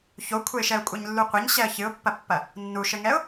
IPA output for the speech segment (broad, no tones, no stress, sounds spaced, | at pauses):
ç o kʷʰ ɘ ɪ̯ ʃ ɛ ʊ̯ kʷʼ ɐ ɲ lː u qʷ ɘ ɲ ɕ ɛ ə̯ ç ɨ ʊ̯ pː ɐ pː ɐ | nː u ʃ ɘ ŋ ɛ ʊ̯